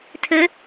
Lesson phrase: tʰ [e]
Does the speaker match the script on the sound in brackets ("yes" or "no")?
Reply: no